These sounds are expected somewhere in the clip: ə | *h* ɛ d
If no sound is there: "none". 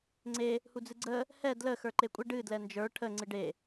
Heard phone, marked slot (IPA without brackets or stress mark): h